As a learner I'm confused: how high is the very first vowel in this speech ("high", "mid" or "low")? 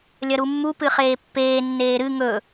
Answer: low